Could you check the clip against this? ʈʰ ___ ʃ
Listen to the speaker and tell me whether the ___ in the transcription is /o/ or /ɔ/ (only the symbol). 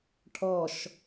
ɔ